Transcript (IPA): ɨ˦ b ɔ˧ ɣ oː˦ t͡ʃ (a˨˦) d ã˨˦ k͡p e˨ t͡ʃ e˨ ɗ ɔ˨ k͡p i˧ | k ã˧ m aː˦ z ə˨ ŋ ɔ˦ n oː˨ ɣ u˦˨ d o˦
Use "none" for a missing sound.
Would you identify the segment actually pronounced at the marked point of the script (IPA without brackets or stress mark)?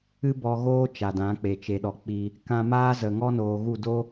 a˨